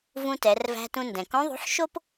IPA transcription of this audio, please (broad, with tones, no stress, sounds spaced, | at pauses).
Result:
v ũ˧ t ɛ˩˧ r v æ̤˧ t ũ˧ n d ɛ̃˩ k õ˧˥ ðˤ o̤˧˥ ħ ʃ o˥ p